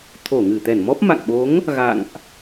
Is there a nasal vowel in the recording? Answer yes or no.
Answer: no